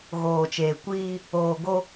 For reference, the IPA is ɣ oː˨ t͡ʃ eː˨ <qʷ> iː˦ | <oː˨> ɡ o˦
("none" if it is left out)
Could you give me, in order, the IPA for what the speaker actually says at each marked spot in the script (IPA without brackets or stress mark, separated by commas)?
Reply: kʷ, oː˨